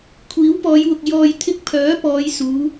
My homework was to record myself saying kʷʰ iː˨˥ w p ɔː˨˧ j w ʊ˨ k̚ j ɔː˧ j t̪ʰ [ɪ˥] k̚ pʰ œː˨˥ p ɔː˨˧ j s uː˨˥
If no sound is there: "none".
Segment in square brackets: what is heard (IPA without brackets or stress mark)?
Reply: ɪ˥